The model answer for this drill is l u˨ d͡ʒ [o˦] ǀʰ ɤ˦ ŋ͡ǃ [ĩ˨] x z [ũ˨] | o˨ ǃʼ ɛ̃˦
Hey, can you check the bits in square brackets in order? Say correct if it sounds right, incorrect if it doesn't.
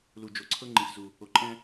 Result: incorrect: o˨, correct, incorrect: u˨

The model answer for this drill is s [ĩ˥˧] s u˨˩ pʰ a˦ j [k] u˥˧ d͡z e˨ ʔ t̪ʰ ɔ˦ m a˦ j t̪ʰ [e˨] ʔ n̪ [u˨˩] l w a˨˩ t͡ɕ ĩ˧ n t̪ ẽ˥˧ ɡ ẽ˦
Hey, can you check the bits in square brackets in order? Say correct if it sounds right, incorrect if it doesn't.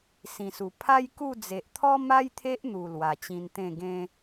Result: incorrect: ĩ˨˩, correct, incorrect: e˦, correct

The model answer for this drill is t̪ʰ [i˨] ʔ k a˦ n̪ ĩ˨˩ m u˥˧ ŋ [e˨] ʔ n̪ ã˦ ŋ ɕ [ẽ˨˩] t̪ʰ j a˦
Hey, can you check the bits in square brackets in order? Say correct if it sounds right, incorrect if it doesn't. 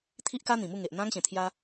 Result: incorrect: i˦, correct, correct

